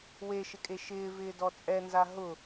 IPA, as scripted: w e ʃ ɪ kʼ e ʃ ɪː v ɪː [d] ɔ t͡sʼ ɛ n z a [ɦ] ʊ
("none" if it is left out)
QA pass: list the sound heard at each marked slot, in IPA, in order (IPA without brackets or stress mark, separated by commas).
d, ɦ